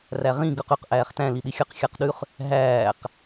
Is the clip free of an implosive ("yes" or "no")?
no